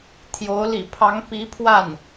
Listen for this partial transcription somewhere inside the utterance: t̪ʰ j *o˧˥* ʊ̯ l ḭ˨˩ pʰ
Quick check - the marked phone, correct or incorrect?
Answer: correct